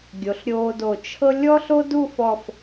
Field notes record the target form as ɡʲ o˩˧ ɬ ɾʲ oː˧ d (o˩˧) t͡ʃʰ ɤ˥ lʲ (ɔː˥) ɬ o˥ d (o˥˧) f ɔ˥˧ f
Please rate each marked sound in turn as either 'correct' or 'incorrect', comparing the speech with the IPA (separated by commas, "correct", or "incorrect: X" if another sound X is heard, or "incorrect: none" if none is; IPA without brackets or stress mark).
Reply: incorrect: o˧˩, incorrect: ɔ˥, incorrect: u˥˧